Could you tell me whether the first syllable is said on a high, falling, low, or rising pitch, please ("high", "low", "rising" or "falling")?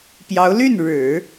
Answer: rising